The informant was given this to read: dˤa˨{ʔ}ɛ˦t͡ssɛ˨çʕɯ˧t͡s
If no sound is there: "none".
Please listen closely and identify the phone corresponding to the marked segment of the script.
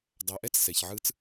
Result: ʔ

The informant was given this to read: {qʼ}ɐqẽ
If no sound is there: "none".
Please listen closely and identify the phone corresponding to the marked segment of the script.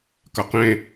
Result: k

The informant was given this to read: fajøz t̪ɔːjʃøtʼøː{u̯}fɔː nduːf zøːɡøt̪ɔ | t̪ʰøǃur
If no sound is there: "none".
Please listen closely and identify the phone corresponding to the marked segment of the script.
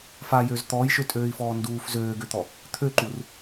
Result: i̯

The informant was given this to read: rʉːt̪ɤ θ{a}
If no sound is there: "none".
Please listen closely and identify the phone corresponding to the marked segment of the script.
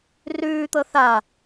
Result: a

